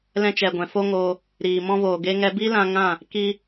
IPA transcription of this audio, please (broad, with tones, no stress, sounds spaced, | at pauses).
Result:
l ɛ̃˧ t͡ʃ ɛ˨ ɡʷ ɛ̃˨ f o˦ ŋ oː˧ | ɾ iː˨ m ɔ̃˦ v oː˨ ɡ e˦ ŋ ɛ˧ b i˦ l ã˧ ŋ ã˦˨ | k i˦